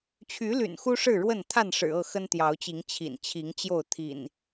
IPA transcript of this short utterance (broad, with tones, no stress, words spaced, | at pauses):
t͡ɕʰy˨˦ly̰˨˩n xu˦ʂɻ̩˥˨ɻwə˥˨n t̪ʰa˥˨nʂɻ̩˨˩ɤ˥˨ xə˦nt̪jɑ˨˦ʊ̯t͡ɕi˨˦ŋ t͡ɕʰḭ˨˩nt͡ɕʰi˨˦ŋt͡ɕjo˥˨ʊ̯ t̪ʰḭ˨˩n